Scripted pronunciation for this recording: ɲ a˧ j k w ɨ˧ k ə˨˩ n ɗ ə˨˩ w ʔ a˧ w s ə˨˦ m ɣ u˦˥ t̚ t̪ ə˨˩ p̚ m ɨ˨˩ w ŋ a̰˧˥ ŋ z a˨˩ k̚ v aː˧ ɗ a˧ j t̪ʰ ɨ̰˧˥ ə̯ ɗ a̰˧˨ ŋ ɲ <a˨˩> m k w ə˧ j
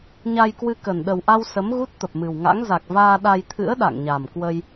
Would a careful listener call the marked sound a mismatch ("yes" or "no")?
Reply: no